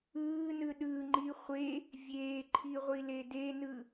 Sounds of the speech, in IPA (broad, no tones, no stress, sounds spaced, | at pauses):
ɯː n ɯ ɗ ɯ ŋ͡ǃ i χʷ e | vʲ eː ǃʰ i ʁʷ i l e d e n ɯ